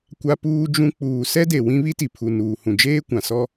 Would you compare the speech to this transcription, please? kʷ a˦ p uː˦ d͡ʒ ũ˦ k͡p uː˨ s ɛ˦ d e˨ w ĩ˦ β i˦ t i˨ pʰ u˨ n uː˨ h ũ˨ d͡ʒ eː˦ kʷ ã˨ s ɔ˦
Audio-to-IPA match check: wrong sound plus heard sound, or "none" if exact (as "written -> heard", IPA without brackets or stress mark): none